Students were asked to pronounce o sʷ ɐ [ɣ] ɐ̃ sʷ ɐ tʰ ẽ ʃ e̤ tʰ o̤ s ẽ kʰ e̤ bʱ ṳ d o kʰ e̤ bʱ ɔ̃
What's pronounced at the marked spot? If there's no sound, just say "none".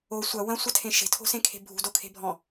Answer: w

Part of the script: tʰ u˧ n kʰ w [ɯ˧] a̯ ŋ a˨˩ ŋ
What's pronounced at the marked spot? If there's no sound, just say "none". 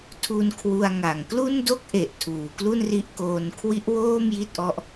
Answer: u˧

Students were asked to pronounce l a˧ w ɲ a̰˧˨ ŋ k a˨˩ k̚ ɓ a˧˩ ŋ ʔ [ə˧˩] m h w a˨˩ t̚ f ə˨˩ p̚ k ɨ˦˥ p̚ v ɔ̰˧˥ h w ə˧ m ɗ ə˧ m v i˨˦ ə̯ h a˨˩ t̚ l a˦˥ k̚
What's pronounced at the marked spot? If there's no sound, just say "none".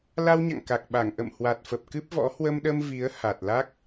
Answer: ə̰˧˨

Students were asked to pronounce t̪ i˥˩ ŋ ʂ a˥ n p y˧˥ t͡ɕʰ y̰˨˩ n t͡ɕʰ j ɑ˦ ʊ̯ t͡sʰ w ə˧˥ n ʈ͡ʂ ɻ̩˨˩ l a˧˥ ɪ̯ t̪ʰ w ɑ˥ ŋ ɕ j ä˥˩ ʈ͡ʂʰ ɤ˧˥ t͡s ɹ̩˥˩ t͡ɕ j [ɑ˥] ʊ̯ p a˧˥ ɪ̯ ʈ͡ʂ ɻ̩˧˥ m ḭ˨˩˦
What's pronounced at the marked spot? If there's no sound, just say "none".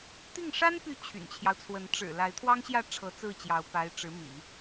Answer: ɑ˧˥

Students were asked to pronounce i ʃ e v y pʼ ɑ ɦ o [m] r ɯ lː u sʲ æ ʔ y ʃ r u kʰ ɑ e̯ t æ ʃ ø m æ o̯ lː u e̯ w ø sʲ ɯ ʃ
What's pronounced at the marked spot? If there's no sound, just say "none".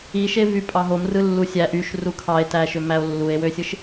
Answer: m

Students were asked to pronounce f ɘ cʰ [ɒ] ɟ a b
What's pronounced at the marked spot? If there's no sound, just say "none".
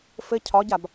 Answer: ɒ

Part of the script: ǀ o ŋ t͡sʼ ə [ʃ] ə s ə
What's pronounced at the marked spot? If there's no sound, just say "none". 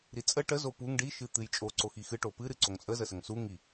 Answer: z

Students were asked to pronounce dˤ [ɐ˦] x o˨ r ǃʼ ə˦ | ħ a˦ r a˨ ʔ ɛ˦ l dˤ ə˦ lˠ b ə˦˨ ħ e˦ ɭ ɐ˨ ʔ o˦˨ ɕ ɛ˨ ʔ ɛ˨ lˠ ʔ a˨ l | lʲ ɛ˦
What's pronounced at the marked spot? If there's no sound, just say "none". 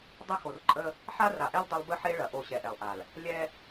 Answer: ə˦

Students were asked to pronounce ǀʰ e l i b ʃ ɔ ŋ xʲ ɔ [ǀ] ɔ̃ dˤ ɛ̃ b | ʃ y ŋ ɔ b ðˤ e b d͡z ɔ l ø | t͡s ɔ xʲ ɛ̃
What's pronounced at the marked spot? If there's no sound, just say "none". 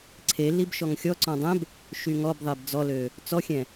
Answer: ǀ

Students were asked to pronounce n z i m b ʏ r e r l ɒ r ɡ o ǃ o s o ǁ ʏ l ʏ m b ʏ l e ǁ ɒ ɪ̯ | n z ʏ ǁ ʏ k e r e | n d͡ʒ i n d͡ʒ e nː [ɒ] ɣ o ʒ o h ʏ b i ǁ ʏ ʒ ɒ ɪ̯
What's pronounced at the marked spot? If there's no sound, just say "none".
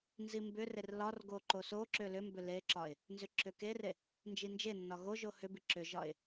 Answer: ɒ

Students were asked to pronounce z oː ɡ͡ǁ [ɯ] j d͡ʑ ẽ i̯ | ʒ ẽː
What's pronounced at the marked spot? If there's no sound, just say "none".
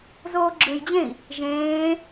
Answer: ɯ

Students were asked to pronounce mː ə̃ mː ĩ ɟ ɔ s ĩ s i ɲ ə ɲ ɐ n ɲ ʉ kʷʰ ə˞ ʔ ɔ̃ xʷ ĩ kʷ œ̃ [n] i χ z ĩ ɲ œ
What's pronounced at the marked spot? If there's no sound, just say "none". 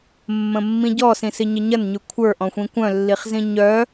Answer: lː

